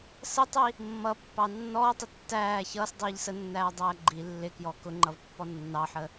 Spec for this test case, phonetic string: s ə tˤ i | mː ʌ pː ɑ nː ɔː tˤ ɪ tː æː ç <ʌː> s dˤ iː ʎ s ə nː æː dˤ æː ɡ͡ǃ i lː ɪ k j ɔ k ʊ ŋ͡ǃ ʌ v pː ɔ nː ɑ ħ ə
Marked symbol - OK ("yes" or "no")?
yes